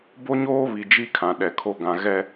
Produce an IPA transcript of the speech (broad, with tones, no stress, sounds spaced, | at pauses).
b o˦ ɲ oː˦ β i˨ d͡ʒ i˦ kʰ ã˨ ɗ ɛ˨ kʰ o˦ ɡ ã˨ ɣ ɛ˦